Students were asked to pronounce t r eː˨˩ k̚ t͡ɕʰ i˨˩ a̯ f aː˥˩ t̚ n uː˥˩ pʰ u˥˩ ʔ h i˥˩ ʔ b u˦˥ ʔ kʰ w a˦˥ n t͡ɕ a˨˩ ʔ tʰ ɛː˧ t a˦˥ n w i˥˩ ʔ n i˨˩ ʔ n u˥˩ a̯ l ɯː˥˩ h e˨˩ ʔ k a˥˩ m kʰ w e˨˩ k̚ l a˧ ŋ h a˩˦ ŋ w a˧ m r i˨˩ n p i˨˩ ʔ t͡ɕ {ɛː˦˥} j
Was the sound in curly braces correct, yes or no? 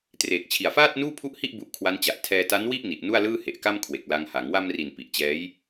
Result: yes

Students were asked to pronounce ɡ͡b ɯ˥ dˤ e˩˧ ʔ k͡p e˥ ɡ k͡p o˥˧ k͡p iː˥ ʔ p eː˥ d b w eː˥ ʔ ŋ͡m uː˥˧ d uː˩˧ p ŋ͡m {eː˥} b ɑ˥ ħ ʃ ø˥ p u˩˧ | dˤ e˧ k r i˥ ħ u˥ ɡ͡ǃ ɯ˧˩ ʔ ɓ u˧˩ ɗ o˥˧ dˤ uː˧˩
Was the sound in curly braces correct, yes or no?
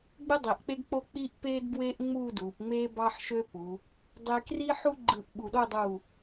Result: yes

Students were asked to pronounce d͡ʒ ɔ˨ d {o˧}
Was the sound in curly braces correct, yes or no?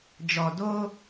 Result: yes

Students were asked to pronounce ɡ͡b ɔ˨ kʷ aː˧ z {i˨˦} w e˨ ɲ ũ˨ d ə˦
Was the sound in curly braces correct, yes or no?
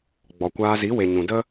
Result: yes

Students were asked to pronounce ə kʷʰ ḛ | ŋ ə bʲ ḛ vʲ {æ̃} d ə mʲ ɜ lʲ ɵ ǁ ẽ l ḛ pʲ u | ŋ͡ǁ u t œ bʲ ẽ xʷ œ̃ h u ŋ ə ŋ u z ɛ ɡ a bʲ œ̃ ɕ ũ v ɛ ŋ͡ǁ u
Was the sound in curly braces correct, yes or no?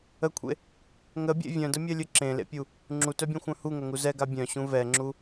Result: no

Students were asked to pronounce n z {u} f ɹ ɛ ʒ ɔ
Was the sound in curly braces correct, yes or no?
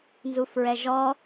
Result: yes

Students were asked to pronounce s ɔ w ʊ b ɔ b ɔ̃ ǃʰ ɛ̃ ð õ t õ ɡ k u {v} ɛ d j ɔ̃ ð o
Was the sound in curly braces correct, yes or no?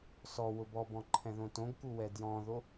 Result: no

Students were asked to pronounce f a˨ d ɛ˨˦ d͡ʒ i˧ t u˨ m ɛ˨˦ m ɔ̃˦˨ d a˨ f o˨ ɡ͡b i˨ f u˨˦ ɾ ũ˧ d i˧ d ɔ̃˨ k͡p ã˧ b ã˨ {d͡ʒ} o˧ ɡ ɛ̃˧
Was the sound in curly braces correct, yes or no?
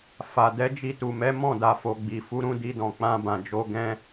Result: yes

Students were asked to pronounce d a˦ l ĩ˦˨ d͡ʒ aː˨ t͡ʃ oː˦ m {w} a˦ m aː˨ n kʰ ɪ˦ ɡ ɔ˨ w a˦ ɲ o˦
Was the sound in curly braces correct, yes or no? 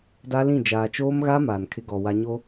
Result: no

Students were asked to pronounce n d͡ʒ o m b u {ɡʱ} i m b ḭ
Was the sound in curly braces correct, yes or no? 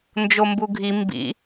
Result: yes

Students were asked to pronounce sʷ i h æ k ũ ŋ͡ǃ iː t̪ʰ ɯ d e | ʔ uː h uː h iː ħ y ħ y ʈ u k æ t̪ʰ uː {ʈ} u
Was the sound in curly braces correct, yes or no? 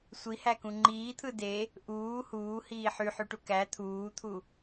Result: no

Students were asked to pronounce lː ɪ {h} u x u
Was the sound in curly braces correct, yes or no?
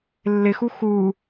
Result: no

